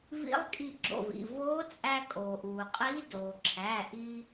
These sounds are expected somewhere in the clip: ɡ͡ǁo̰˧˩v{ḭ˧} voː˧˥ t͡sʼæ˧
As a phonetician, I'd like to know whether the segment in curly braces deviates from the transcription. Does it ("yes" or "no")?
yes